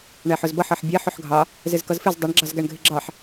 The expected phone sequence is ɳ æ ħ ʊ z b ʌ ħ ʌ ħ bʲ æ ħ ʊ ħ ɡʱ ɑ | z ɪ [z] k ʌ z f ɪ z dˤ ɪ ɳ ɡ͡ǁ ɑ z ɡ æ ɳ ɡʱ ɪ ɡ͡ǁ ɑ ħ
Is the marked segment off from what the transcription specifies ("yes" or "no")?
no